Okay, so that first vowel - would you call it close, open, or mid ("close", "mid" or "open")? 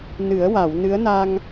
close